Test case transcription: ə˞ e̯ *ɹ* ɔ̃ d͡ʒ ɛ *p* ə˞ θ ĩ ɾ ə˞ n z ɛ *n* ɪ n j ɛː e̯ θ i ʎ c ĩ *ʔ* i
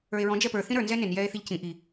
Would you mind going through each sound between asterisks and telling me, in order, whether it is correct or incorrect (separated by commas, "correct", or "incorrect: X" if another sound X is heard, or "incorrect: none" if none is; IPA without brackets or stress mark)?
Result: correct, correct, correct, correct